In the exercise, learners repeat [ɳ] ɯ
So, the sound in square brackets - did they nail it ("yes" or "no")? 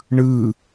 yes